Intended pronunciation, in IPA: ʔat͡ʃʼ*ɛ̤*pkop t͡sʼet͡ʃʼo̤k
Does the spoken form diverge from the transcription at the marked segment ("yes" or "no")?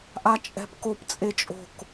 no